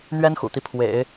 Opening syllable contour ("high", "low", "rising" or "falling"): high